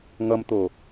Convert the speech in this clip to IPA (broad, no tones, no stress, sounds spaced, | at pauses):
ŋ ʌ m t̪ o